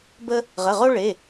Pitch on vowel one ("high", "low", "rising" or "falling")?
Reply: high